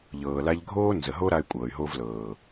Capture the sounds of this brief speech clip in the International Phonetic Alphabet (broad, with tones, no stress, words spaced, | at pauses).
ʎɤː˨la˧ʎɡʱoː˦nzə˨ ɦo˦ ɾa˧y̯kʷʼɤː˨y̯ɦo˧vlɤː˨